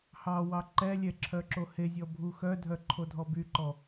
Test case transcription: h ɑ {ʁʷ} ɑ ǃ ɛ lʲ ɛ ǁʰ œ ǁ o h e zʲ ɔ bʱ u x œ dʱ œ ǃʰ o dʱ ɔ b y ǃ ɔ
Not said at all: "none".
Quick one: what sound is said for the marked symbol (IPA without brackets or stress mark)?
w